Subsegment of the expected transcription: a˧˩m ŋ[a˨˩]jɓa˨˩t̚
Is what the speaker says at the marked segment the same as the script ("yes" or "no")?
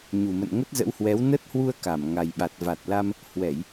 yes